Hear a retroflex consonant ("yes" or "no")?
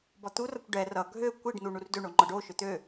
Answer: yes